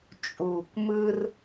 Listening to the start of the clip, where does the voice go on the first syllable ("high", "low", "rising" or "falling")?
low